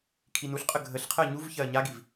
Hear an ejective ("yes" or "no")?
yes